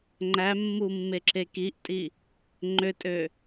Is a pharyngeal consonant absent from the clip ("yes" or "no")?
yes